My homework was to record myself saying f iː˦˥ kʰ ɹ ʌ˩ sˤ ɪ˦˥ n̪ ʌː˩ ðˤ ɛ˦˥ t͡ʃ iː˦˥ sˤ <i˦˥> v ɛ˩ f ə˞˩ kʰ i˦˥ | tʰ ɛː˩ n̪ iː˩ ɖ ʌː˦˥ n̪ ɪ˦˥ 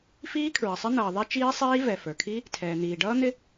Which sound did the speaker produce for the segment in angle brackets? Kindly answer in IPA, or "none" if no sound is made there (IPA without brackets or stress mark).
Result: iː˦˥